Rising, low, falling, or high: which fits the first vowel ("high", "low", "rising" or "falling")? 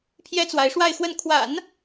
high